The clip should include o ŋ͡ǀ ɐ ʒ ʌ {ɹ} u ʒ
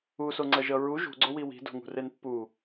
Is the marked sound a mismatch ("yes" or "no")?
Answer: no